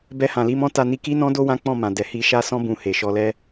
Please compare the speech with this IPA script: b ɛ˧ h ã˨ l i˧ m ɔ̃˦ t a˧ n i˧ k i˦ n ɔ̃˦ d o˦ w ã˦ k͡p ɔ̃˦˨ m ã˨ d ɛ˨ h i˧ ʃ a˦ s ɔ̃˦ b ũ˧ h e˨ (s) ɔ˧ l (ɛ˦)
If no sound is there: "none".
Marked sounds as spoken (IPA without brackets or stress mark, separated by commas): ʃ, ɛ˦